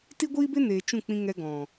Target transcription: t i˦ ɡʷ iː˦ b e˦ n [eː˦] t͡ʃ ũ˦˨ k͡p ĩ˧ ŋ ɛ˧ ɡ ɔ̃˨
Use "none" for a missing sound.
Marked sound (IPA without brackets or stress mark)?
eː˨